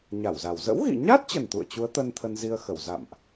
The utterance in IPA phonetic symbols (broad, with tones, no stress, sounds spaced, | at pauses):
ɲ a˧˩ w z a˨˩ w z ə̰˧˥ w ɣ ḭ˧˨ ɲ a˦˥ t̚ t͡ɕ ə˨˩ n t̪ ṵ˧˨ ə̯ t͡ɕ u˨˦ ə̯ t̪ ə˧ n t̪ʰ ə˧ n z i˧ ə̯ x ə˧˩ w z a̰˧˨ m ʔ